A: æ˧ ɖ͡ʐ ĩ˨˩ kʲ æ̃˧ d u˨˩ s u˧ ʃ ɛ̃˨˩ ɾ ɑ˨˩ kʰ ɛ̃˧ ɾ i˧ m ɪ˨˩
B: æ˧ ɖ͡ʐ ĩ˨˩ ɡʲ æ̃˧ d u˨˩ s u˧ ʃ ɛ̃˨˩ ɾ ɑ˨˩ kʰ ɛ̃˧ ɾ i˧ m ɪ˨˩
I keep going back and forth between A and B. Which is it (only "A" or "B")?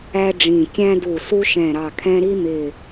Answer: A